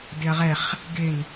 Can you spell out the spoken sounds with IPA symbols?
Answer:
dɪɐ̯ʁɛχ | ɡɪn

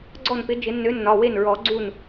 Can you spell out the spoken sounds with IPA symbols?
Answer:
ɡ͡ǀɔ˥˩npɪ˨˥ d͡ʒɪ˨˩˦nːø˨˥ nːɒ˩˧˩we˥˩nɹɔ˨˩˦ ɡ͡ǀu˥˩n

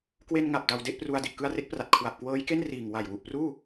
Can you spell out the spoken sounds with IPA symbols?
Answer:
kwe˧nŋa˨˩p̚ da˧wde˥˩ʔpru˧a̯ di˨˩ʔkɯ˧a̯re˦˥k̚pra˨˩t̚ kʰwa˨˩p̚kwɤː˦˥jke˥˩n riː˨˩ŋwa˨˩jwu˨˩ʔpruː˥˩

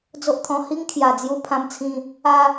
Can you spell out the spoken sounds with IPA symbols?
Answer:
d͡zo˦ʔt̪ʰɔ̃˧ hi˦ŋkʰja˨˩d͡zju˧ pʰã˧mt͡sʰĩ˧ | a˦

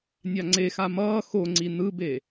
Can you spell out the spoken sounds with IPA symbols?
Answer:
nʲaŋ͡ǀexa mʌː xoŋ͡ǀi nɯbe

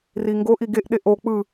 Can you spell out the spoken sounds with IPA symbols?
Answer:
riŋɡoʔ iɡeʔ ɗeʔo k͡pɯ

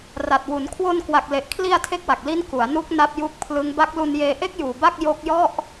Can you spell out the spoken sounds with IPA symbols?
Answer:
ra˨˩t̚wu˩˦n kʰwo˧nkwa˨˩k̚le˨˩ʔkʰli˧a̯ tʰe˥˩k̚wa˨˩k̚ li˦˥n ku˩˦a̯ nu˦˥k̚ na˦˥p̚ju˦˥k̚pʰlɯ˦˥ŋ ba˦˥k̚lu˧njeː˧ ʔe˥˩k̚juː˨˩ ba˥˩k̚ jo˦˥k̚jɔ˥˩ʔ

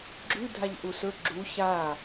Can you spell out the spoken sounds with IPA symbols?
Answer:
ɡ͡ǁʉ dʱaʎʔusɵ ɡ͡ǁu ça

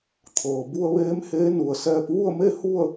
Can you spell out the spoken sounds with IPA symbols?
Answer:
t̪ʰɤː˩bu˧ə̯ ʋeː˧˥mheː˧˥nu˩ə̯sɛː˧p̚ ʋu˥˨ə̯me˥˨ hu˥˨ə̯

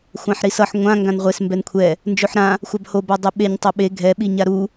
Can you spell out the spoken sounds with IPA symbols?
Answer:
xʷãħɾisʌħ ŋʷã ŋɡãnʁʷes mbɛnkʷʰɛ | nd͡ʒoħɾã | xʷabho badˤeɓeɲ tˤʌɓe ɡʱɛ ɓiɲaɾu

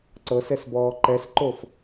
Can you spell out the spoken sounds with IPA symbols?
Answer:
ǀɤsɛsbɔː ǃɛsǃof

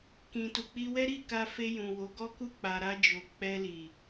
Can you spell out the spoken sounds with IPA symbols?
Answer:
kĩ˨tu˨k͡pi˧wɛ˦ ɾi˦˨ka˧fe˧ jũ˨wo˨˦ ɡɔ˦ku˦ k͡pa˧ɾa˦d͡ʒo˧ k͡pɛ˧li˨

